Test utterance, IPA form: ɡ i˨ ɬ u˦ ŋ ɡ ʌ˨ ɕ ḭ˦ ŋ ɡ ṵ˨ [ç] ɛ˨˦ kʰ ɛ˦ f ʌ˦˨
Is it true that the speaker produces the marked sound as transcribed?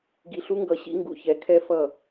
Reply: yes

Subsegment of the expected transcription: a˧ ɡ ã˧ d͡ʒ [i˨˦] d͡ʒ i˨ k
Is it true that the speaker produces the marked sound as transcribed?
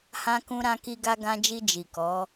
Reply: no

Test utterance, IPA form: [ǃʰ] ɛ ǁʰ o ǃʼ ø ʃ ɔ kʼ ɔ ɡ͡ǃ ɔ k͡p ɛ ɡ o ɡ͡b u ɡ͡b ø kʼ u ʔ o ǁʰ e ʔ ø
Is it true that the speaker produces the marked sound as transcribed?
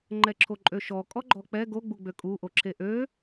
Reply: no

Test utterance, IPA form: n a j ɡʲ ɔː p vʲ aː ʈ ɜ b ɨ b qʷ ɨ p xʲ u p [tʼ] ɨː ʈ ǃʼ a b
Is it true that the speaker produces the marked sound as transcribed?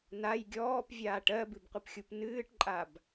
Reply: no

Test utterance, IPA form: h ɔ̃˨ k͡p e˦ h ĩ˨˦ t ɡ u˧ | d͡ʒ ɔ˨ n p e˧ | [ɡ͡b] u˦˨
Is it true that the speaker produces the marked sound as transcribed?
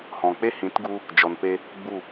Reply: yes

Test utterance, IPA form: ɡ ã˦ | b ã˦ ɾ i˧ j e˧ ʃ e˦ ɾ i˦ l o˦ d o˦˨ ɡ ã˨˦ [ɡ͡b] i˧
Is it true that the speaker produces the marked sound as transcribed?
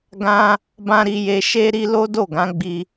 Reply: yes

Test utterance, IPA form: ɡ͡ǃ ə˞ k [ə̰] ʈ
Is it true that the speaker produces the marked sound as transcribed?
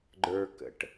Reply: yes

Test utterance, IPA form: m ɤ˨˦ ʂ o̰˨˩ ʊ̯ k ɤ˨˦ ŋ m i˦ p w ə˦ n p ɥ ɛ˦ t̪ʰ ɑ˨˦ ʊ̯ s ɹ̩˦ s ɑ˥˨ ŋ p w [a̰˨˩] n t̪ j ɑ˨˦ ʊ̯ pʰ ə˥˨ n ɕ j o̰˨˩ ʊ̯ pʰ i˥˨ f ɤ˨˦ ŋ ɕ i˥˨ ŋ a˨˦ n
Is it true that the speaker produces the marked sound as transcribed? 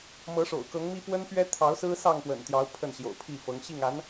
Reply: no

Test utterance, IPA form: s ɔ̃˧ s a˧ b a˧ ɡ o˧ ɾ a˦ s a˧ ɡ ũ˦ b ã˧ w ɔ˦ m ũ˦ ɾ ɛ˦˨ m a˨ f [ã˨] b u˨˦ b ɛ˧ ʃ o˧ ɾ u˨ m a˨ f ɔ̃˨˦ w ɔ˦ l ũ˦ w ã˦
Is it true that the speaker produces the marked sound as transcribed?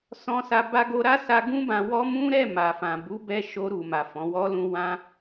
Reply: yes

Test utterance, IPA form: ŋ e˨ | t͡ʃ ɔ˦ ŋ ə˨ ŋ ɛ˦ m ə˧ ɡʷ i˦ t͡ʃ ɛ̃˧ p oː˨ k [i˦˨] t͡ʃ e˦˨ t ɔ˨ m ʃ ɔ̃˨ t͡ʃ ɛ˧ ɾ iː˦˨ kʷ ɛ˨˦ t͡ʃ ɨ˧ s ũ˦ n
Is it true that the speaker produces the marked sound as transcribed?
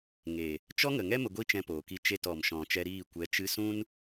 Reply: yes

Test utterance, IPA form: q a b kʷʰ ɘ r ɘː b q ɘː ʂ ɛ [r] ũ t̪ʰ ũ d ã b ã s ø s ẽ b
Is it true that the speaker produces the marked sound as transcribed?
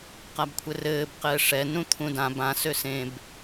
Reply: no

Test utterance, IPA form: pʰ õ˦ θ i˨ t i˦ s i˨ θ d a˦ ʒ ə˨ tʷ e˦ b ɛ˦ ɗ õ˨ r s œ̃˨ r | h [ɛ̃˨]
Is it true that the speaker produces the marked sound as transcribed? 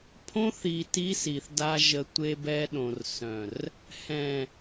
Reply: yes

